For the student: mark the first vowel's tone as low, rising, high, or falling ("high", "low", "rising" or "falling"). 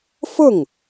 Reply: falling